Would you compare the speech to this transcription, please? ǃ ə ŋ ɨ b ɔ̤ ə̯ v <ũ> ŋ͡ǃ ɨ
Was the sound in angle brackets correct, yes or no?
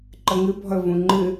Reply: yes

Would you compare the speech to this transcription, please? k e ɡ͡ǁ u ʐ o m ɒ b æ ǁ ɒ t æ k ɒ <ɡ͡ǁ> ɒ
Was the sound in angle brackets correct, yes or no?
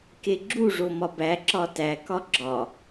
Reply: yes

